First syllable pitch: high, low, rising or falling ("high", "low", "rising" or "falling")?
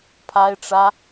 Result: high